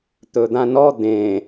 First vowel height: mid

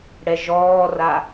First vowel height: mid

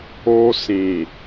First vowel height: mid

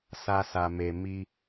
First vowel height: low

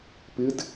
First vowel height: high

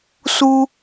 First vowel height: high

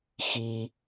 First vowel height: high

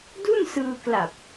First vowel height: high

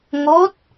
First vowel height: mid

